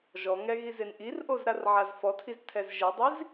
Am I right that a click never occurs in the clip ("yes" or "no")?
yes